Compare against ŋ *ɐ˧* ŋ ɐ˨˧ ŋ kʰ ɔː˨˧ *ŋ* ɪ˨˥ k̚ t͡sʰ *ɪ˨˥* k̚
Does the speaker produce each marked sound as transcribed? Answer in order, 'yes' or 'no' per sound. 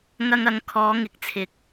yes, yes, no

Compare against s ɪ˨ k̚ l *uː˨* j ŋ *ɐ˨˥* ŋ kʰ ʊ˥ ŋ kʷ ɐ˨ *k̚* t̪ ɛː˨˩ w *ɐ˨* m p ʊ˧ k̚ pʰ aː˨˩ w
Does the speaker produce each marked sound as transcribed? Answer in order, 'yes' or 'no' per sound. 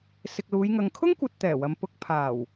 no, no, no, yes

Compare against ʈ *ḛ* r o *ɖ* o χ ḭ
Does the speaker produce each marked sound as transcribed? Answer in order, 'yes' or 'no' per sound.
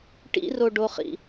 no, yes

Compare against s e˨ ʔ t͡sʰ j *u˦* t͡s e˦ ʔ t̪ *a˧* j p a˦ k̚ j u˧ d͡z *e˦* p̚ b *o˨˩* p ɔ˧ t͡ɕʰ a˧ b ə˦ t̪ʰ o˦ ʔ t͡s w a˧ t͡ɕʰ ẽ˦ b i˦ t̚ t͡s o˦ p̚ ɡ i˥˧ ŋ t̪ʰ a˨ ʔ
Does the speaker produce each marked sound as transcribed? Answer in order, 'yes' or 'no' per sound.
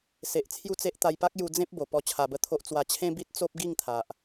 no, yes, no, yes

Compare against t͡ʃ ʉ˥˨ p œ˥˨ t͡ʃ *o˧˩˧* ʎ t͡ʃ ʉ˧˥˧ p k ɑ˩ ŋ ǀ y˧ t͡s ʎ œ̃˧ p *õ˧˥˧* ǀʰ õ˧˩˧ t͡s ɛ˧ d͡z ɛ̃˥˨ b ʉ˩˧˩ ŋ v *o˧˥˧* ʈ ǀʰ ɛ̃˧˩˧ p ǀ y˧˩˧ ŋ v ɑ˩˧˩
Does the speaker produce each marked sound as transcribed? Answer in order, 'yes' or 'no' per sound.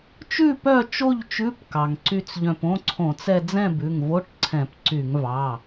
no, yes, yes

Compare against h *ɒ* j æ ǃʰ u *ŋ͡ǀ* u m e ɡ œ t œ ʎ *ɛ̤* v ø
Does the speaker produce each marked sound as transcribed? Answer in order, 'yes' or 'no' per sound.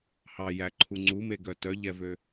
no, yes, no

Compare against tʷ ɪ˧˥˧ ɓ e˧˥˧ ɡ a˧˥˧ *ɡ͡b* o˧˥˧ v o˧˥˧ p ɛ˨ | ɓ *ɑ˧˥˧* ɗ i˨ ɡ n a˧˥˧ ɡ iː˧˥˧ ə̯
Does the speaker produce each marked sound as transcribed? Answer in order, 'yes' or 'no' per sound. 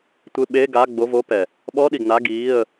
yes, no

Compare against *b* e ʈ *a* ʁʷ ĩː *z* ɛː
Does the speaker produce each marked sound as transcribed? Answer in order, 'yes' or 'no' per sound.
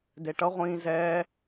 no, no, yes

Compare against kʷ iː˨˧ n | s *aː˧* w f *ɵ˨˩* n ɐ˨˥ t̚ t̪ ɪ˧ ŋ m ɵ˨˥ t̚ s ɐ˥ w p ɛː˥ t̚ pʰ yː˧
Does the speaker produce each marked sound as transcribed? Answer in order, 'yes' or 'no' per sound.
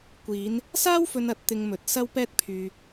no, no

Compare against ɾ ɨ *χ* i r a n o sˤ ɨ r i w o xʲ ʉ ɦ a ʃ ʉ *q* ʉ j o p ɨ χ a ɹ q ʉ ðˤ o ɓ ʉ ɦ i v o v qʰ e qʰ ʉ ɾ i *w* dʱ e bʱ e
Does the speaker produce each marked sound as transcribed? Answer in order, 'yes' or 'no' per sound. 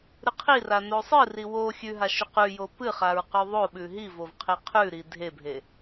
no, yes, no

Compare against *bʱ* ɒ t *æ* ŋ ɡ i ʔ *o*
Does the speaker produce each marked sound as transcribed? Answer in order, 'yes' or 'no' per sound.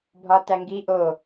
yes, yes, yes

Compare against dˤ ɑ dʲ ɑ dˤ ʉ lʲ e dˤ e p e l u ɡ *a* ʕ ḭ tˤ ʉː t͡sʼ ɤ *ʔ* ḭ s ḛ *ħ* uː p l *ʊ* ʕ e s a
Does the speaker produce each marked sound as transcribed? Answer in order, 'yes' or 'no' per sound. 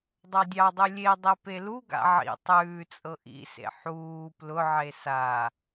no, yes, yes, yes

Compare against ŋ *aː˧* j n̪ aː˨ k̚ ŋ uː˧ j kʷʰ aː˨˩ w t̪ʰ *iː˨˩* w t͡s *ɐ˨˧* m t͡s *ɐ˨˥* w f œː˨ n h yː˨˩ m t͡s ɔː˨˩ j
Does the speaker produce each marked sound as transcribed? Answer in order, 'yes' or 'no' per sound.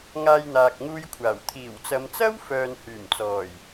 yes, yes, yes, no

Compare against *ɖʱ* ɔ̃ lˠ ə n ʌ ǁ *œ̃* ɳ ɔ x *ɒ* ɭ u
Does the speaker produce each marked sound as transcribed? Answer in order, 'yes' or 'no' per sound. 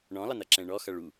no, no, no

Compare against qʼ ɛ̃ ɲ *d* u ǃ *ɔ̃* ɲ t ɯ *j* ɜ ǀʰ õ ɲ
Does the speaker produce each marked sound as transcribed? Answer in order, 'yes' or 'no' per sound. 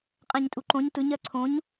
no, no, no

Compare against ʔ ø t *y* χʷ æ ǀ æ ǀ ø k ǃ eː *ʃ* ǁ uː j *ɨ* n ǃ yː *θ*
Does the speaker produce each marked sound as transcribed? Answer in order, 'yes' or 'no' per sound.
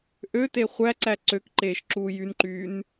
no, yes, no, no

